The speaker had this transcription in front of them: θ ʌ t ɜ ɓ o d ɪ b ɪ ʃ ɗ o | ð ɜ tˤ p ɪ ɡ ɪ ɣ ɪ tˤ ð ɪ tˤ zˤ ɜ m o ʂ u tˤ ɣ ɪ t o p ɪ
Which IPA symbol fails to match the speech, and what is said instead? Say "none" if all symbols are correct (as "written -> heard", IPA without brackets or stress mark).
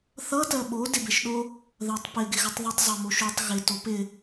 ʂ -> ʃ